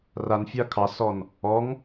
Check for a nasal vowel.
absent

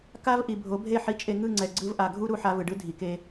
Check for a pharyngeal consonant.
present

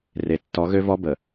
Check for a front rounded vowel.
present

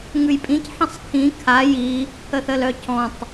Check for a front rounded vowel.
present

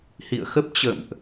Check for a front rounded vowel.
absent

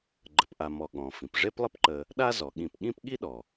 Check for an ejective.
absent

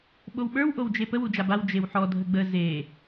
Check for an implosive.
present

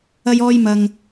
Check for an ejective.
absent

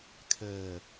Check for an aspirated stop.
present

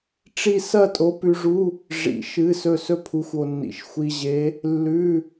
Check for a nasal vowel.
absent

